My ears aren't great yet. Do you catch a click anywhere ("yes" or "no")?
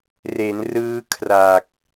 no